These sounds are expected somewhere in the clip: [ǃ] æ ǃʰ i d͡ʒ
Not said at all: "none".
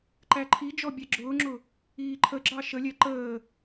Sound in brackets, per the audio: ǃ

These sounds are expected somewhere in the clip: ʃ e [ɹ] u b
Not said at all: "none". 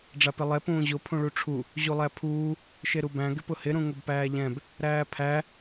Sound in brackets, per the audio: ɾ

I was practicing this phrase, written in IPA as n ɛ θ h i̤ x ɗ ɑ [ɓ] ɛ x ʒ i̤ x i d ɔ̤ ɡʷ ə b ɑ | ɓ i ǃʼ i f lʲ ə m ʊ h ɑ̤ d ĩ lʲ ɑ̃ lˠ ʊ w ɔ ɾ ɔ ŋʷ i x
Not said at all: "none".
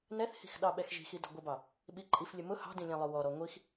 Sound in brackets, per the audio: ɓ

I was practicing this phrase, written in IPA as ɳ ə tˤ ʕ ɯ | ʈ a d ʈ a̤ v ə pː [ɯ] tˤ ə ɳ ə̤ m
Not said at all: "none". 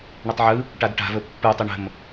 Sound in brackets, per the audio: ɯ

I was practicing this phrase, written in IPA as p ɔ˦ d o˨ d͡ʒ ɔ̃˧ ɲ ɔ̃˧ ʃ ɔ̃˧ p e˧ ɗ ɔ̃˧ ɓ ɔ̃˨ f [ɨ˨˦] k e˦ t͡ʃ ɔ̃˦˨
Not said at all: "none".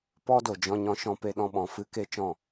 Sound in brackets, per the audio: ɨ˧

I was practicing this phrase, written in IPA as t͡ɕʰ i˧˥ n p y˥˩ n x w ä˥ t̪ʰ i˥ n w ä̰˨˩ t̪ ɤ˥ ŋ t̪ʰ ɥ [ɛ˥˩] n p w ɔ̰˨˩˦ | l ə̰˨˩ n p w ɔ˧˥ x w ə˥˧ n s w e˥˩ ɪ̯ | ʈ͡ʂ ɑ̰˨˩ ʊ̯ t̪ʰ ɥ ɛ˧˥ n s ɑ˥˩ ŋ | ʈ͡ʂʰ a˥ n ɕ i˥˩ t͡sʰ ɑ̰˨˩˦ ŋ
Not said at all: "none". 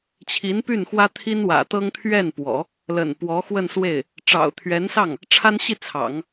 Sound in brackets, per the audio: ɛ˥˩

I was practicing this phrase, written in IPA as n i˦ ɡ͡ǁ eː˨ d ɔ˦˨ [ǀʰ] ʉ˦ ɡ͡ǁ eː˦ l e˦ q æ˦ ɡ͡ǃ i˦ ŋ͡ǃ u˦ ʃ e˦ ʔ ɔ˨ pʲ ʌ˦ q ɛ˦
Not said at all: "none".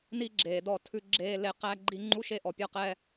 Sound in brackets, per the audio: tʰ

